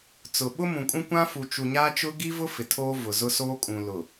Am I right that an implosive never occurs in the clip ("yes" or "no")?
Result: no